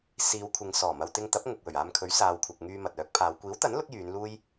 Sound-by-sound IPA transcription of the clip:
siː˨˧wkʷʰɪ˨ŋ sɔː˨˩mɐ˨wt̪ɪ˧ŋt̪ɐ˨˥p̚ ŋʊ˨k̚ wɵ˨˩ɥaː˧mkʰɵ˨˥ɥ saː˨wkʷʰɐ˨k̚ŋyː˧ mɐ˨t̚œː˨˥k̚pʰaː˨˧w kʷiː˨˥wt̪ɐ˨˥n lʊ˥k̚jyː˨˧nluː˥j

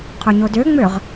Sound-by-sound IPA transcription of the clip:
qʰoɲodøŋ͡møʁ

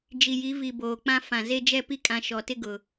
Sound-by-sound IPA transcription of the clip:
d͡ʒi˨ji˨˦vi˨ boː˨k͡pã˦ fã˨ ze˦d͡ʒɛ˦˨pi˦kʼã˨ ʃɔ˨tɪ˦ɡʊ˨

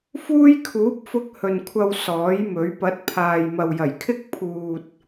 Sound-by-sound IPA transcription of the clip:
fuː˥jkʰuː˨˥p̚fʊ˧k̚ hɵ˨nkʷʰɐ˧w sɔː˨˥jmɵ˨˥ɥ pɐ˨˥t̚pʰaː˨j mɐ˨wjɐ˨˩jkʰɪ˥k̚ pʰuː˨t̚

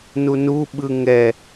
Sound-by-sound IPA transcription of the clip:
nunuɓɯ ŋɛ

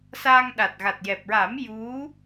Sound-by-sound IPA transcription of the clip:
saː˧ŋɗa˨˩t̚ ɣa˨˩t̚jɛ˨˩p̚ɹa˨˩˦m ju˧˥

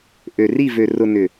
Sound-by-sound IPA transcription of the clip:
ʔø˨ri˦˨ vø˨ rʊ˨ nʏ˨

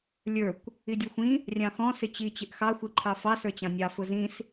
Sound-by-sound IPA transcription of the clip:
lʲə˞kʷ | idʲɔxʷĩ | rʲɑ̃xɔ̃ sɪt͡ɕi t͡ɕɪʔxɑ xʷiǃʰɑfɑ sə˞t͡ɕɑ̃nʲɑ fʊzĩs

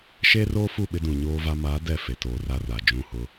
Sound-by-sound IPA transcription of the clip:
ʃeː˦roː˦fu˦˨ ɓɪ˦dũ˨ɲoː˦va˦ maː˨˦ dɛ˦˨fe˨toː˨ra˦˨ ra˨ d͡ʒũ˦˨hʊ˦

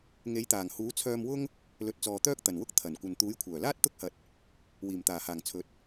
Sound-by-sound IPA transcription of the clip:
ŋe˨˥jt̪aː˨˩ŋ huː˨˥t͡sʰœː˧mwʊ˥ŋ | lɵ˨˥t̚t͡sɔː˨t̪œː˥k̚ t̪ɐ˨˩nwʊ˥k̚ t̪ʰɐ˨˩nkʷɐ˨n t̪uː˨˥jkʷʰœː˨˩laː˥t̚ t̪ʊ˥k̚hɐ˨t̚ | wiː˨˩mt̪aː˨˩haː˨˩ŋ t͡sʰɵ˨˥t̚

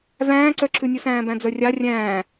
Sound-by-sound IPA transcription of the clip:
væ̃ːǀœǁʉnʲʉ sæ̃ːbæ̃d͡zœrʲɑ rʲæ̃ː

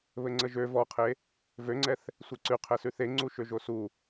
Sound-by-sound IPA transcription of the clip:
βɘŋ͡ǀəʒø vɔqʰe | vøŋ͡ǀɛθ | sʷeǀʉ qʰɛsʉθe ŋ͡ǀuʃøʒosu

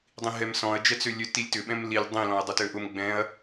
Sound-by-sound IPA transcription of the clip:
dˤĩɦɛmsɔ̃ɐ̯ d͡ʒɛt͡sølʲø tilʲtʏ ɓɛ̃mlilʲ dˤĩ lɔ̃ɐ̯dˤʊtøʔʊm ɡ͡bɛ̃ɐ̯

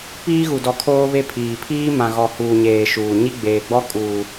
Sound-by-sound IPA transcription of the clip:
piː˦ɣu˨dɔ˨kʰoː˦ βe˦pʰiː˨ pʰiː˦mã˨ɣɔ˨ huː˨ɲeː˨ ʃuː˨ ɲi˦ɡ͡beː˨ɡ͡bɔ˦kʼuː˨

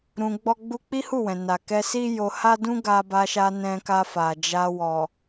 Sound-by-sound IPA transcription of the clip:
ɾũ˧ɡ͡bɔ˦ɡ͡bu˦ k͡pi˦hu˦˨wɛ̃˨ na˨kɛ˧ si˦jo˧ha˦ dũ˦ɡa˧ba˧ʃa˧ nɛ̃˧ka˧fa˨ d͡ʒa˧wɔ˨

